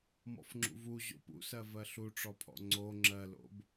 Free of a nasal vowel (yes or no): yes